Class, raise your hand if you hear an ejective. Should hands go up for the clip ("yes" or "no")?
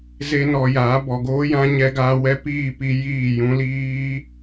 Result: no